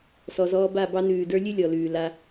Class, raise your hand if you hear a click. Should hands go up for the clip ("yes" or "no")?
no